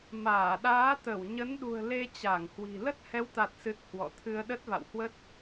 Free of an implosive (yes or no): no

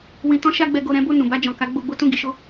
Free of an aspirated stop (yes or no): yes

